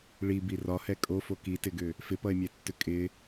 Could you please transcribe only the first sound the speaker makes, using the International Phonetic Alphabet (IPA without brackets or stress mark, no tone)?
ɭ